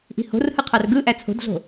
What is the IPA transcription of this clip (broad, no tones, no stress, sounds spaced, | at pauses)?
ʔ i̤ h o̤ r h ɯ qʰ ɑ r ɡ ɯ ʔ æ t͡sʰ o̤ d ɮ o̤